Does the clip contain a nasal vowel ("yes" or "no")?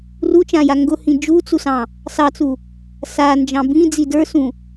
yes